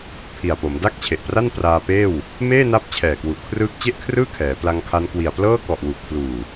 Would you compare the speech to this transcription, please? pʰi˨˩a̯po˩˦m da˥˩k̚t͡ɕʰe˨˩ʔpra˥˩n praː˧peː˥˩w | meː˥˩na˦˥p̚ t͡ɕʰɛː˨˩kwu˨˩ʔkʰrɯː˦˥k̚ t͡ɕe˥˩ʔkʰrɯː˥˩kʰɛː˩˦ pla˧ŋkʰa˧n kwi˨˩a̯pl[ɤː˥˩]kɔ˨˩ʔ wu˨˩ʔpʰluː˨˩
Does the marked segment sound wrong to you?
no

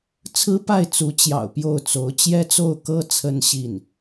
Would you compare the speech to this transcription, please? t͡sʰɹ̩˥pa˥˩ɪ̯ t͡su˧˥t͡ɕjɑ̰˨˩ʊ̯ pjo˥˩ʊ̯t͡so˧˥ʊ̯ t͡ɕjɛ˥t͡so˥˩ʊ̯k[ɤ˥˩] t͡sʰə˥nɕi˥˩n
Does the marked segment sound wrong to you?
yes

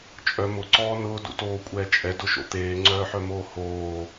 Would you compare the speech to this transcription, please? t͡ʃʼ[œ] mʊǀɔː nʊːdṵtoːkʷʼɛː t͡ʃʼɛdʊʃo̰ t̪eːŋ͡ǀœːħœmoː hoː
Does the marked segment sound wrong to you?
no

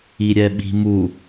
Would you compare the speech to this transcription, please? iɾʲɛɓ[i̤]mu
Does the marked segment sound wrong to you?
no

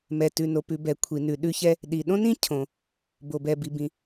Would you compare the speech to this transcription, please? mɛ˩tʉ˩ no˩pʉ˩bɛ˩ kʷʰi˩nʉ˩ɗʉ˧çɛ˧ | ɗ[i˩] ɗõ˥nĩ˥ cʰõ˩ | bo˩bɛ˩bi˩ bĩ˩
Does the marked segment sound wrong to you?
no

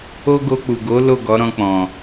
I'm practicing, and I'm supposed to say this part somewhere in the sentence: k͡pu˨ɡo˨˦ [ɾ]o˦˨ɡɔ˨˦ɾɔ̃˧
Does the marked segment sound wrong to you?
yes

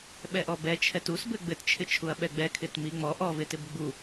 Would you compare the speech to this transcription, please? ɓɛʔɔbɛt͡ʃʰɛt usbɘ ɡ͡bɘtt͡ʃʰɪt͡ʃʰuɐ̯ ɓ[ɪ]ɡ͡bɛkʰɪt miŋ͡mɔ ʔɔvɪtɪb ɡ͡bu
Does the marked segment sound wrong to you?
yes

